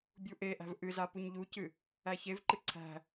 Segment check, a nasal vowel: absent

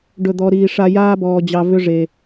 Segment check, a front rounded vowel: present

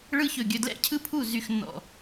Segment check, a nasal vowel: absent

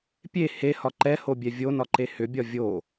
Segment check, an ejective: absent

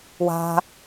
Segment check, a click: absent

